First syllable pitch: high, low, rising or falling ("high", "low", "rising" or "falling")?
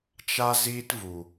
high